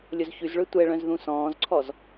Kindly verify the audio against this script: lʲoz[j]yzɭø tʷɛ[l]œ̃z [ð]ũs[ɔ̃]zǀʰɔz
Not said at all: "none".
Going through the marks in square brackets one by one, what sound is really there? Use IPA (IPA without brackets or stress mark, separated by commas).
ç, ɭ, ð, ɔ̃ː